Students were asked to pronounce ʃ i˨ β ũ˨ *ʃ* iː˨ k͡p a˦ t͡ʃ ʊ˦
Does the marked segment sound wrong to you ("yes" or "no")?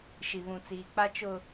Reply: yes